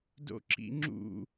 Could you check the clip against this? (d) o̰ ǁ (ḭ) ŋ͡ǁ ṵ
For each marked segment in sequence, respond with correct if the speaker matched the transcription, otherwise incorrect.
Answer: correct, correct

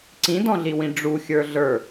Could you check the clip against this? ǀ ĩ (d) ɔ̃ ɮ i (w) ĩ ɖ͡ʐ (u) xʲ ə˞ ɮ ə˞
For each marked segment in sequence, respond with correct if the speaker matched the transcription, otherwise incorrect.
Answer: correct, correct, correct

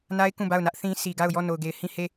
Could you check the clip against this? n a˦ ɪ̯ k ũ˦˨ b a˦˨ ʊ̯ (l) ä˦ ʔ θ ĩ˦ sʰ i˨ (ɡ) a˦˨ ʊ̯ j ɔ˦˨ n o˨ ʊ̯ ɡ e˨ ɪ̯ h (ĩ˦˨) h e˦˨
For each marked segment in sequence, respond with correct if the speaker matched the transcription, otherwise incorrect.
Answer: incorrect, correct, correct

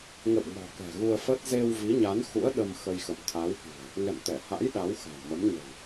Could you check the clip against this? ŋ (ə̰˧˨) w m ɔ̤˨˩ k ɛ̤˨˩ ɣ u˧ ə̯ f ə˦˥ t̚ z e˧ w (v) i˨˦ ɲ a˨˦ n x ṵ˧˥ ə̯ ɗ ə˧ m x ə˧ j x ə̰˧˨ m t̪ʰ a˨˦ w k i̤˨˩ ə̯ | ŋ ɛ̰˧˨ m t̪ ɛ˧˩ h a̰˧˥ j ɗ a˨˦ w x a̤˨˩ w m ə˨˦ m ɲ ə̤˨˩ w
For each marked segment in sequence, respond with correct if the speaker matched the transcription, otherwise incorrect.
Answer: correct, correct

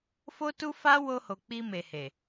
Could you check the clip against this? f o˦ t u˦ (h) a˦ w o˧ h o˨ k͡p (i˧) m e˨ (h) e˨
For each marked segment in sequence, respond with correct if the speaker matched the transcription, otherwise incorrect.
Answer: incorrect, correct, correct

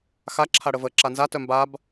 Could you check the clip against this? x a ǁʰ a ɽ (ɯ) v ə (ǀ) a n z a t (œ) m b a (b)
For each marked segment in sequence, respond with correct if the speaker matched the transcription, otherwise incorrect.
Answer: incorrect, incorrect, correct, correct

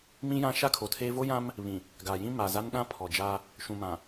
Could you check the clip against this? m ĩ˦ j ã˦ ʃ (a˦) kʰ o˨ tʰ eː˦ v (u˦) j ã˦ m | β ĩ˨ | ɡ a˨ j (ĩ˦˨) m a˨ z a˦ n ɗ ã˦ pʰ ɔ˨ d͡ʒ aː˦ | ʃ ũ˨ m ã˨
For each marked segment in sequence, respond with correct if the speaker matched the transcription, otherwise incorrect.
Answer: correct, incorrect, incorrect

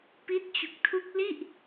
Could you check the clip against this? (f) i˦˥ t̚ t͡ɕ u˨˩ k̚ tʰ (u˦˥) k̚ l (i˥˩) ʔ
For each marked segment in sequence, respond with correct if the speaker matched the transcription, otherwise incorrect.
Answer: incorrect, correct, correct

